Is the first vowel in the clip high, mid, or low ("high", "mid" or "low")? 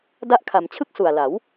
low